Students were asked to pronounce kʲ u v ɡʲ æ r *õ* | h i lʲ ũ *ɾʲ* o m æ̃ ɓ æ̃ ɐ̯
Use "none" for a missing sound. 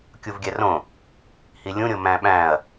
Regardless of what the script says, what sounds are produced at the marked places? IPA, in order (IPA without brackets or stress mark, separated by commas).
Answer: õ, ɾʲ